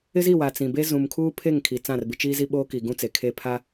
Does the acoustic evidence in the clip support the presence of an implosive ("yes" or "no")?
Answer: yes